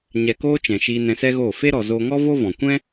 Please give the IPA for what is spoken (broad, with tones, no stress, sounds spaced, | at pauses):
ɲ ɛ˧ k oː˦ t͡ʃ ɛ̃˨ ʃ iː˧ n ɛ̃˧ s ɛ˦ ɣ oː˦˨ f e˦ ɾ ɔ˨ z oː˧ ŋ ɔ˦ v o˦ v ɔ̃˨ kʷ ɛ̃˦